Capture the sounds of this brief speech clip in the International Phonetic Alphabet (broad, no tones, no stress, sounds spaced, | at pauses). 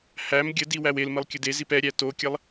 h æ m ɡʲ ə d i w æ w e l m ə lˠ kʲ ə d e z i p ɛ ɾʲ æ t o kʲ ɐ lˠ